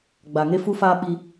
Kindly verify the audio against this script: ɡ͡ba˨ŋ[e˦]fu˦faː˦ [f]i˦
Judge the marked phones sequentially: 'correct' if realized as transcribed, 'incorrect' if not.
correct, incorrect

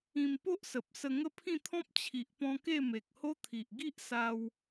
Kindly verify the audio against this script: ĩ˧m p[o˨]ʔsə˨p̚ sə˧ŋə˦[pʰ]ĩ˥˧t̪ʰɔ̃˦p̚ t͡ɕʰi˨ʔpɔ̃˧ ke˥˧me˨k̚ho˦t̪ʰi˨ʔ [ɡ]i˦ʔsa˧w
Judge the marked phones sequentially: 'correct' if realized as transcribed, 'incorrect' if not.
incorrect, correct, correct

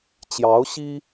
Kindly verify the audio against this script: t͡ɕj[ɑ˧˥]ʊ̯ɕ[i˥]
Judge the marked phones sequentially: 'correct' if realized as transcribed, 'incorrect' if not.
correct, correct

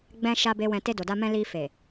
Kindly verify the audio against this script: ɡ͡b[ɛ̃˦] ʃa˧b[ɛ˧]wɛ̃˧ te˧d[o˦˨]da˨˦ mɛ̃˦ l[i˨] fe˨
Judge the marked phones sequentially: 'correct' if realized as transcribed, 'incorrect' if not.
incorrect, incorrect, incorrect, incorrect

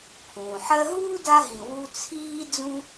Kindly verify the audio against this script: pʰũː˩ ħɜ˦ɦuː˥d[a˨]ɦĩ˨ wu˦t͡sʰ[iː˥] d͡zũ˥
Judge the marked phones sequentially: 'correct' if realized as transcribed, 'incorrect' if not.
incorrect, correct

